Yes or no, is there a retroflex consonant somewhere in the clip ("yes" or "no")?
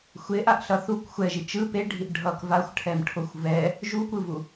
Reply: yes